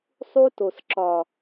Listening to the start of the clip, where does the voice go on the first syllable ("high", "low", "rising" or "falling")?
high